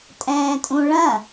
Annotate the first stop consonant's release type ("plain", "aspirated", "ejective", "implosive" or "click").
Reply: ejective